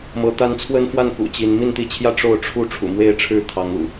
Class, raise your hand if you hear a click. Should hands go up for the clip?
no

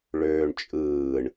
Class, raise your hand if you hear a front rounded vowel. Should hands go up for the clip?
yes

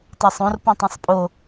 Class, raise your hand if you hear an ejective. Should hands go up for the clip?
yes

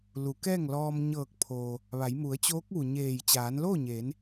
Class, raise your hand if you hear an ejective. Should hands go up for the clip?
no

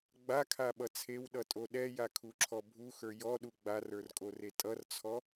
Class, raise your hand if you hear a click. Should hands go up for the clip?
yes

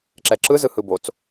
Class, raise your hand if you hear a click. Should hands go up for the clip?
yes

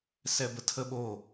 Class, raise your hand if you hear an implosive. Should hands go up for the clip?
yes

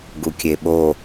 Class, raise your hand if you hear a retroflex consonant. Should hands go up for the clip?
no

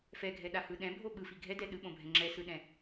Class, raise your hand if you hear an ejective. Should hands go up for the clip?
no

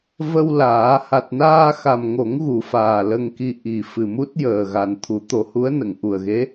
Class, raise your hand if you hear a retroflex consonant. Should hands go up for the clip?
no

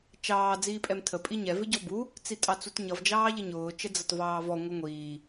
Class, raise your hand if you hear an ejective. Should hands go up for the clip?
yes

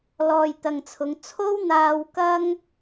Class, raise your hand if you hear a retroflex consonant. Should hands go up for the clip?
no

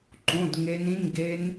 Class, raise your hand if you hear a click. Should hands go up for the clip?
yes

